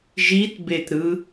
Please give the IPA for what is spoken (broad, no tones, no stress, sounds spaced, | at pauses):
ʒ i t b e t ɾ ɯ